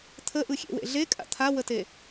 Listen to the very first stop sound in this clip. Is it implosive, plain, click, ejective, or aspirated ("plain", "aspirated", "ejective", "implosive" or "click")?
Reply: aspirated